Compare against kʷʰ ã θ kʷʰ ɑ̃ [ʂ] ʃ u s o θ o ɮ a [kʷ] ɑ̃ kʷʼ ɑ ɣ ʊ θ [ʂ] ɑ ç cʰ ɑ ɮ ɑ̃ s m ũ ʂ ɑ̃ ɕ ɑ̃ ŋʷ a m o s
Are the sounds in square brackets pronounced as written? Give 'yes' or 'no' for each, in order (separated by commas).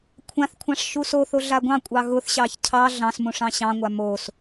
yes, no, no